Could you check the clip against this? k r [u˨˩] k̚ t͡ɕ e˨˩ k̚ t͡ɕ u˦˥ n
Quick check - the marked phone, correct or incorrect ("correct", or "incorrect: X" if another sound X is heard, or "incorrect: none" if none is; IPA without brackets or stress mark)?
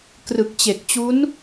incorrect: ɯ˨˩